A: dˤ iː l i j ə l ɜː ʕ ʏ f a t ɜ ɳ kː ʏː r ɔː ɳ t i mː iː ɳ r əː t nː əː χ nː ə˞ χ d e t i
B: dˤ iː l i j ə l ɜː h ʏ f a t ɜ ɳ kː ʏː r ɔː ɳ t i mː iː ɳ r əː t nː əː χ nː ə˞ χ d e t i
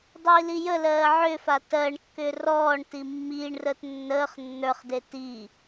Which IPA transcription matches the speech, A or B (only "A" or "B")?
A